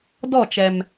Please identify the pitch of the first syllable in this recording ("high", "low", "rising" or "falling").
falling